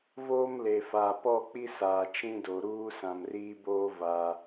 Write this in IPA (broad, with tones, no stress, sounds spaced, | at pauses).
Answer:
v oː˦ m l e˨ f aː˨ p ɔ˦˨ k͡p i˦ s aː˨ t͡ʃ ĩ˦ d o˨ ɾ uː˦ s ã˨ m r iː˦ b oː˦ v a˦